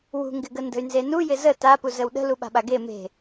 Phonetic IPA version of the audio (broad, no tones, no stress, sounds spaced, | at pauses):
w ṳ ŋ ɡ ɪ ɡ ə n d ə̤ y̯ n z e n u j ɪ z ə t a p u z ə w ɗ ə̤ l u ɓ a̤ ɓ a ɡ e m e̤